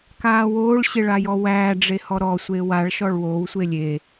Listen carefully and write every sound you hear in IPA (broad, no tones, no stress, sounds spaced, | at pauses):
k aː w oː ɭ ɕ e ɭ a j ɔ w æː ɖ͡ʐ e h ɔ ɾ ɔ sʷ e w a ɭ ʃ ɔ ɭ w oː w sʷ e lʲ e